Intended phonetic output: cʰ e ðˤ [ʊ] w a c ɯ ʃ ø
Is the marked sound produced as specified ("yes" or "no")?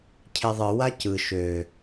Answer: no